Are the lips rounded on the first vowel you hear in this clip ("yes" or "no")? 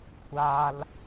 no